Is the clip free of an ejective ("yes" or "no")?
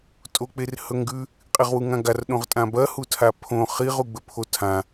no